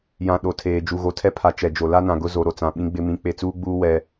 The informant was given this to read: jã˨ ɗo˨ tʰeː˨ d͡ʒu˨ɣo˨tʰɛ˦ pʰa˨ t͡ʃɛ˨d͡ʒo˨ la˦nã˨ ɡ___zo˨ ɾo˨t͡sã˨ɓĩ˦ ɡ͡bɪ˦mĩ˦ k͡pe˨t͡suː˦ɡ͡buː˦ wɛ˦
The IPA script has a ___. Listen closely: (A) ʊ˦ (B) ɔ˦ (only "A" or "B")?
A